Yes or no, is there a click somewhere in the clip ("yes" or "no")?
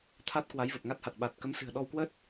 no